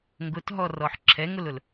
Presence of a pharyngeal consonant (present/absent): present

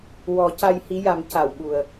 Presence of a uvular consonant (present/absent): absent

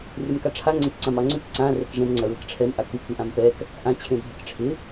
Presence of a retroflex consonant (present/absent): present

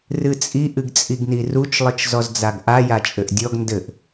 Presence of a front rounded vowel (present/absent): absent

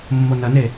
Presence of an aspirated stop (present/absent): absent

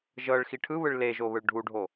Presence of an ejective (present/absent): absent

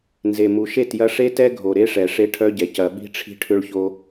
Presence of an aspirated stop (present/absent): present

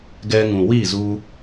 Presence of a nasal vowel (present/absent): present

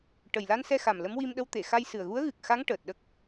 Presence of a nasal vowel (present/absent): absent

